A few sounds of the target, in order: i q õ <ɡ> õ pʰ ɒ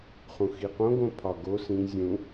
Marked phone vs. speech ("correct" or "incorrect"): correct